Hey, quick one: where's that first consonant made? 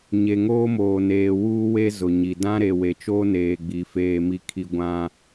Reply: palate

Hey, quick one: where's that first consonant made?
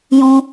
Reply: palate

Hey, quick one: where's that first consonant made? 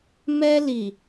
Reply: lips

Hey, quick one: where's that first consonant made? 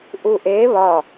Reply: throat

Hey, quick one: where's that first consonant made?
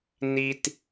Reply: tongue tip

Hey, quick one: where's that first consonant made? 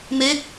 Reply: lips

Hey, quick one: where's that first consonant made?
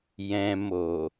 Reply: palate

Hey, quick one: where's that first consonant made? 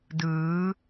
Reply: tongue tip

